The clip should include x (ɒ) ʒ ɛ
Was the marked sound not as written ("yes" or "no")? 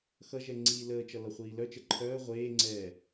yes